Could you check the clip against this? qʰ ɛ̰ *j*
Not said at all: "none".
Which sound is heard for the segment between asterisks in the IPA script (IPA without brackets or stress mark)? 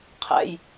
j